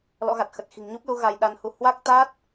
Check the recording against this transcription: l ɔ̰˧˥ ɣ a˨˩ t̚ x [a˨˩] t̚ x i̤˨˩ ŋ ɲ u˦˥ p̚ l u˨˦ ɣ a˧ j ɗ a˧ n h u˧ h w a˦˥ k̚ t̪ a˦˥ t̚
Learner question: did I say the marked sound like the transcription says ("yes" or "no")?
no